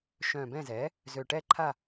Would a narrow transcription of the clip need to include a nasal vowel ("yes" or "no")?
yes